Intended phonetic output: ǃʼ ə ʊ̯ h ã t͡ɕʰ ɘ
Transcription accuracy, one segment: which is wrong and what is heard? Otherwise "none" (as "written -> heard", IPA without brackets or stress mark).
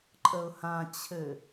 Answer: none